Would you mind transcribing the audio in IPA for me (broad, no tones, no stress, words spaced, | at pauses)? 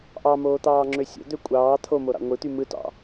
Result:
ʔɑmoːt̪ɑːŋ͡ǁø sʲo̰d̪ø kʷʼɑː t̪ʰomoɾɑ̰ ŋʷɯt̪y mɯtɑ̰